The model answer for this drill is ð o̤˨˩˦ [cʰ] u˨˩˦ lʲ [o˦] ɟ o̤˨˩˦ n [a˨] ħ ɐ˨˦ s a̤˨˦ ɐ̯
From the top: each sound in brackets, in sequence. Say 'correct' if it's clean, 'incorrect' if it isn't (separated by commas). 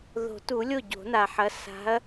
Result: incorrect, incorrect, correct